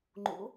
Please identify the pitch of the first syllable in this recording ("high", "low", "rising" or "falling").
rising